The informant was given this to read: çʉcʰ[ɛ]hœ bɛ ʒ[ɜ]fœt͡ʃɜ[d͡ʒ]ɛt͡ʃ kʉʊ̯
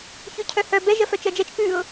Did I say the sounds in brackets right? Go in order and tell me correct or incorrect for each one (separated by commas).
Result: incorrect, correct, correct